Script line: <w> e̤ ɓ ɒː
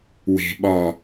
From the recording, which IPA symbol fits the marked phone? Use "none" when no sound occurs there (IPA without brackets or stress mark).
w